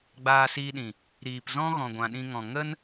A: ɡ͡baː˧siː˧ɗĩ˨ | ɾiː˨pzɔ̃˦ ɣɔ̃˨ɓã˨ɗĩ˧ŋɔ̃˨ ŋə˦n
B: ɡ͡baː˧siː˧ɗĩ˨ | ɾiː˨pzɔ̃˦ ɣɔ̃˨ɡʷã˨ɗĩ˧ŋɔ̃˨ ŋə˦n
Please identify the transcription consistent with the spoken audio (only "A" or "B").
B